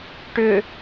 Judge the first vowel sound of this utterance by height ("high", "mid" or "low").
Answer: high